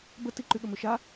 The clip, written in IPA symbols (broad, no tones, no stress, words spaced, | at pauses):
bətiǃy ɠəmøʃa